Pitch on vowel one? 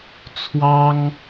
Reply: high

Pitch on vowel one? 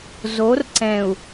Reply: rising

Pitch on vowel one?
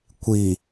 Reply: low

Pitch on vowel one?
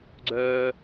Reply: high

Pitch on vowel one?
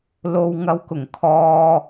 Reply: low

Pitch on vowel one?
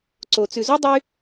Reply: low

